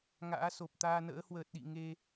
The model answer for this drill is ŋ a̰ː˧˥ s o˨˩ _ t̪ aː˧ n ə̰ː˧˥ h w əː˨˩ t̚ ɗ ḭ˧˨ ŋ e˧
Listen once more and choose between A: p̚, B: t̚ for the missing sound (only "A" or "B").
A